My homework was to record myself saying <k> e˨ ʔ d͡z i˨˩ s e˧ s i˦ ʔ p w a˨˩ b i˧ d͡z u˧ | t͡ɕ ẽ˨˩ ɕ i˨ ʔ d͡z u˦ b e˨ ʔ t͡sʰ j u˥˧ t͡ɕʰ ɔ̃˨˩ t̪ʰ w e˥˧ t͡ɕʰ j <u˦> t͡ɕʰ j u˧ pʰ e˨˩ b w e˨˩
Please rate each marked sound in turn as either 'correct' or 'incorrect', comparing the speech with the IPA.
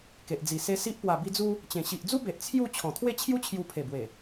correct, correct

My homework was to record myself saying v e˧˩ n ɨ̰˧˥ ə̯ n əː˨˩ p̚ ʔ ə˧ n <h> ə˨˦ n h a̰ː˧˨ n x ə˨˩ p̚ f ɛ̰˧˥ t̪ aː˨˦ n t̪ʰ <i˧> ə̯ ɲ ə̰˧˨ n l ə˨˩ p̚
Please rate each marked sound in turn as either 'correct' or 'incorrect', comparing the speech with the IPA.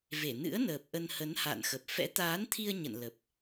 correct, correct

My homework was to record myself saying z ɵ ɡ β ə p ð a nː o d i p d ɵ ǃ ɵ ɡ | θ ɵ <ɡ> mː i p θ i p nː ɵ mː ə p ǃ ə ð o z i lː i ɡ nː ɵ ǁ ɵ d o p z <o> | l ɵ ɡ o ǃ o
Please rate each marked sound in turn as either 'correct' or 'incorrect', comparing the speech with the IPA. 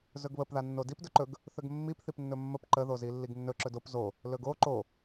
correct, correct

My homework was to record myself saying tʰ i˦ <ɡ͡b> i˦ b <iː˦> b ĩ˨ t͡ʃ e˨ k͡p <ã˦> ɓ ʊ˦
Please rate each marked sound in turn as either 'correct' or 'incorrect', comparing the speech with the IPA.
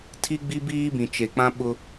correct, correct, correct

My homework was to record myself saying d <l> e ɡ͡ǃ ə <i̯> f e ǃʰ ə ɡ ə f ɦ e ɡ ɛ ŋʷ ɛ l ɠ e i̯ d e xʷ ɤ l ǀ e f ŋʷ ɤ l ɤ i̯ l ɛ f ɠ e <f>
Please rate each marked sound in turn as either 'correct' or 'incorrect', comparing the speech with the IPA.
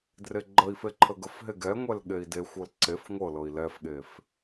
incorrect: r, correct, correct

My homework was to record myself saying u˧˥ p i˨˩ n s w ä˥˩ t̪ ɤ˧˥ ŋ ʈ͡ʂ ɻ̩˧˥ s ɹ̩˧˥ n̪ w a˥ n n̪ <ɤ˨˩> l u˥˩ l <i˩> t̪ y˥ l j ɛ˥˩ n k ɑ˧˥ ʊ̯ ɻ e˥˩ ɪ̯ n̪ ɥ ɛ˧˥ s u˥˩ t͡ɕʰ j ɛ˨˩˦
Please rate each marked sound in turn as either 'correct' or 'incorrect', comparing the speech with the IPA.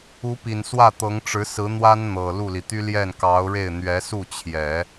correct, correct

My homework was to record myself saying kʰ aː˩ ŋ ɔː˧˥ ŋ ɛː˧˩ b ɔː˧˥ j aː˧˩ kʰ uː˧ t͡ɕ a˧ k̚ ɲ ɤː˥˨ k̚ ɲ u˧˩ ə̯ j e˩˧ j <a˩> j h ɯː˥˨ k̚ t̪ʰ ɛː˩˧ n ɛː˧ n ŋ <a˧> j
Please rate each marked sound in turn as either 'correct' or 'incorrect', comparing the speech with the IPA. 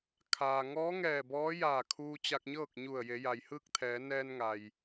correct, incorrect: a˩

